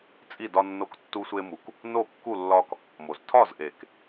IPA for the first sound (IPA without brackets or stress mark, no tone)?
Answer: t͡sʼ